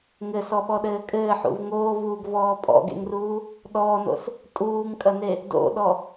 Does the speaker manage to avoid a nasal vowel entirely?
yes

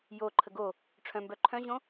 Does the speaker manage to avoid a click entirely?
no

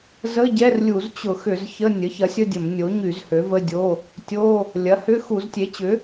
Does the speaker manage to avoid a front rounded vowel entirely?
no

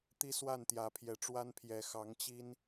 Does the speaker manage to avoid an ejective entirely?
yes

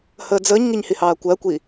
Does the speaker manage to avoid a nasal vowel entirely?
yes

